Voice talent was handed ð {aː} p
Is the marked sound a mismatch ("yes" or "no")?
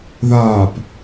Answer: no